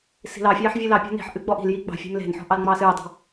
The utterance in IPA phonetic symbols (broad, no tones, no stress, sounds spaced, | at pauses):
s i̤ l ɑ fʲ ɑː ħ vʲ ɨ l ɑ pʲ ɔ̤ n i̤ ħ ʔ ɨ ɡ͡b ɔ ʔ i̤ l j i ɡ͡b ɑ̤ fʲ e̤ m l e̤ n ħ ɔ̤ ʔ ɑ l ŋ͡m ɑː s ɨː dˤ ɑ̤